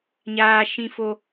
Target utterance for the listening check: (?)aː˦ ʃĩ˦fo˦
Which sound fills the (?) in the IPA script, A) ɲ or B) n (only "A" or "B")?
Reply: A